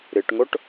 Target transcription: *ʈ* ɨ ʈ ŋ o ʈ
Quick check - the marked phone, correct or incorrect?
incorrect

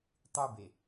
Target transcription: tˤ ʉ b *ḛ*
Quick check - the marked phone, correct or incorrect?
incorrect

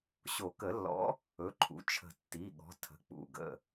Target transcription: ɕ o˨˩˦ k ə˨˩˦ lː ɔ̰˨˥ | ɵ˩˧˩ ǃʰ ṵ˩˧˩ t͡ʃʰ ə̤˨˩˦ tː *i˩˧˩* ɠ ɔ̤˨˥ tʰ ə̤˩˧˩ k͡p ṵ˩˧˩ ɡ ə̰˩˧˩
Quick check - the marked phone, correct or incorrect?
correct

